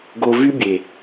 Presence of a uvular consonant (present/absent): absent